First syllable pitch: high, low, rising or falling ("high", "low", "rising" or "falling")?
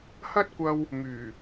high